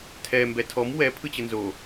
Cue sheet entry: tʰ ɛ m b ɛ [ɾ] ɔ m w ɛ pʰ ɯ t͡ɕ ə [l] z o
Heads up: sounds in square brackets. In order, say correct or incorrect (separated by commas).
incorrect, incorrect